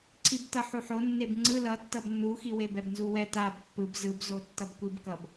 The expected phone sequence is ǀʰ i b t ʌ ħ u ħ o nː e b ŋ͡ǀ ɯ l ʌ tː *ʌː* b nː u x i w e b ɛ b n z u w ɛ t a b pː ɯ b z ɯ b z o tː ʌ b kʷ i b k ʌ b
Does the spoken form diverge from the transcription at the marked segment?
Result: yes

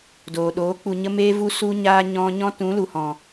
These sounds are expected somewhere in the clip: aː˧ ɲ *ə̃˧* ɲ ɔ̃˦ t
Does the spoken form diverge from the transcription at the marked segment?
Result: yes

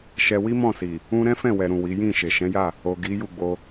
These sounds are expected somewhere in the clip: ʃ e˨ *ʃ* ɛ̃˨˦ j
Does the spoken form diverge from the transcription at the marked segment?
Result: no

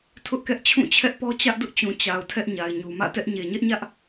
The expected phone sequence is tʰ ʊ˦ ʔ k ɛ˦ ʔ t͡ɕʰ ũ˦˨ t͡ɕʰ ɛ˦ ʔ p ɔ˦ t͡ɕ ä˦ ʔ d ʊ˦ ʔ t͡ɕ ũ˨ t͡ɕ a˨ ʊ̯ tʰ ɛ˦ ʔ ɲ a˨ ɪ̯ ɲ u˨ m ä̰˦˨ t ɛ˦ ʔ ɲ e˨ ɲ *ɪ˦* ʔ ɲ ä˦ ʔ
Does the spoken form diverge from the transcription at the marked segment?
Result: yes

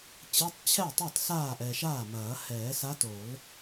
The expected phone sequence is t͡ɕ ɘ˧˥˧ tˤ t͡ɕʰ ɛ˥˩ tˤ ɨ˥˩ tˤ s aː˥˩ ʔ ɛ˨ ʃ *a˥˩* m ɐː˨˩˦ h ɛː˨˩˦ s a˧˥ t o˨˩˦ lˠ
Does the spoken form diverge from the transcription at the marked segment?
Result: yes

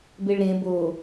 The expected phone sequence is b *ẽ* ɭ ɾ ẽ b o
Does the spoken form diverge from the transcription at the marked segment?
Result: yes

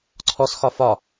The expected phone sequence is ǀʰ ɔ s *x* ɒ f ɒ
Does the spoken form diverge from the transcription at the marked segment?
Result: no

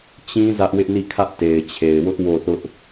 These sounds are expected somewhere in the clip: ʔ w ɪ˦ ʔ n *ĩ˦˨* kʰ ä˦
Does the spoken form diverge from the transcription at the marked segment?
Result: yes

